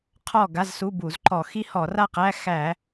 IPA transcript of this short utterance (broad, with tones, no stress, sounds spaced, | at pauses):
qʰ ɔ˥˨ ɡ a˧˥˧ z s u˧˥˧ b u˧˩˧ z ǃ ɔ˧˩˧ x i˦˥ h ɔ˧˩˧ r a˥˨ q æ˧˥˧ x æ˧˩˧